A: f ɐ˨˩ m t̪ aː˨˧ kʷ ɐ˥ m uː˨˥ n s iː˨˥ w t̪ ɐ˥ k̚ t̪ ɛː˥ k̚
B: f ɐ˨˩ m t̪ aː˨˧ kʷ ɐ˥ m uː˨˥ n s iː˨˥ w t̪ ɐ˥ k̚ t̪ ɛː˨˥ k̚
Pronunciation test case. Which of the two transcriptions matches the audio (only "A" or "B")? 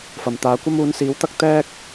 A